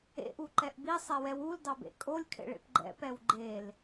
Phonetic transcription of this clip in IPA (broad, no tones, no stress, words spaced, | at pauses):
ḛʔuǃɛʔ bisˤɛwɛw uldɑbḛ kʼolʲkʰḛɭḛp ɡ͡ǃɛ̰pɛw ɡ͡ǃel